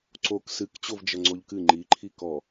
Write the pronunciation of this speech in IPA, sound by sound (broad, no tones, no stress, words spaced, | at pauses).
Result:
ǀok sɨkt͡ɕovd͡ʒɐ ŋ͡ǀoʎkɨ ŋ͡ǃiǃʰi kɔ